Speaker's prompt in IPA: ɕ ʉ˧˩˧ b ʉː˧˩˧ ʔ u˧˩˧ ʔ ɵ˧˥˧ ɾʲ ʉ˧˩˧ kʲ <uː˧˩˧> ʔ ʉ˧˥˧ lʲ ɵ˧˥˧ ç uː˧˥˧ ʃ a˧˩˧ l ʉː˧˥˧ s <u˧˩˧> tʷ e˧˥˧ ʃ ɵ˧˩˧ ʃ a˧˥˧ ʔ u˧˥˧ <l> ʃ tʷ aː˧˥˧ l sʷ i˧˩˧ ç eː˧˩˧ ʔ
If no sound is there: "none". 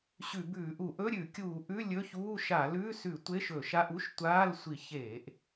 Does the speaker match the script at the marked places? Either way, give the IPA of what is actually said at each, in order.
uː˧˩˧, ʉ˧˩˧, none

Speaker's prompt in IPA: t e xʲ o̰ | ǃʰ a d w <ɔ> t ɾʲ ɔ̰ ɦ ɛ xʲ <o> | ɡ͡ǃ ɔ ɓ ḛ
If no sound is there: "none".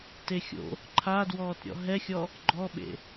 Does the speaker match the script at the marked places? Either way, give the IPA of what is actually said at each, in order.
ɔː, ɔ

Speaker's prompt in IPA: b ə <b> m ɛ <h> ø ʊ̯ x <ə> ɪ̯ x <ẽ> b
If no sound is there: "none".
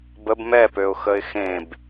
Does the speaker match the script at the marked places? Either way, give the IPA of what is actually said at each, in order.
b, p, ə, ẽ

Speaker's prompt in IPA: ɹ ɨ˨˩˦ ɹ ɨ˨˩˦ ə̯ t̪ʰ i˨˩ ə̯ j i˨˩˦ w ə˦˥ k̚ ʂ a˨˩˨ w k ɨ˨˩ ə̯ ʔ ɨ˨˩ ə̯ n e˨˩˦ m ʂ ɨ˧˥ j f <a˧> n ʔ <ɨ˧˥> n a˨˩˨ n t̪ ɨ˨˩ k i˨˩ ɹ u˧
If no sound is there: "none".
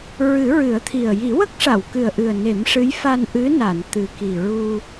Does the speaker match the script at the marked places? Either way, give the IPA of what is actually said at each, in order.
a˧, ɨ˧˥

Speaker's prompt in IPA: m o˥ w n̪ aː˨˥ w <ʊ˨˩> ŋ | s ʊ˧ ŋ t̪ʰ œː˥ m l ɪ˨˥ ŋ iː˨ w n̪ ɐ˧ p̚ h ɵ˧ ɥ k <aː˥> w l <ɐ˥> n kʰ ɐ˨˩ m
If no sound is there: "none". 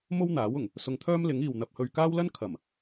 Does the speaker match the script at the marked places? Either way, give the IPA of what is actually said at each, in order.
ʊ˨˩, aː˥, ɐ˥

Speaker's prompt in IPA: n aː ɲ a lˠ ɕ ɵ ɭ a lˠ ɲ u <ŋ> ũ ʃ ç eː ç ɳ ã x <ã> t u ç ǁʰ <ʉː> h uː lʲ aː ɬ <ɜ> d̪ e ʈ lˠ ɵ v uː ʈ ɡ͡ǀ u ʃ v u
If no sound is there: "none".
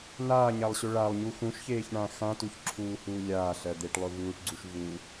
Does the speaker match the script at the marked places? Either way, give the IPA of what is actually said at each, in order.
x, ã, uː, ɜ

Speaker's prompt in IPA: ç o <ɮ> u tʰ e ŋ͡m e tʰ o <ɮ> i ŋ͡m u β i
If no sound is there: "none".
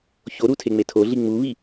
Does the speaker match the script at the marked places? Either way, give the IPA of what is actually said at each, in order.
ɾ, ɮ

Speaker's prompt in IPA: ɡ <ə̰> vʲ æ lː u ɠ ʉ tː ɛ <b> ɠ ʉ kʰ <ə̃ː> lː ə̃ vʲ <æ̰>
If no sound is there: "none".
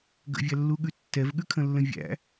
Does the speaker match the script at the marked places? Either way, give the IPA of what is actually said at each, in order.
ə̰, v, ə̃, æ̰

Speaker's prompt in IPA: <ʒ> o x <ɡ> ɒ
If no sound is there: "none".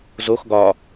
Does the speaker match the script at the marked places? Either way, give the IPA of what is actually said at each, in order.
z, ɡ

